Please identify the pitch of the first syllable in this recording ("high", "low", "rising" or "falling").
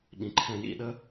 low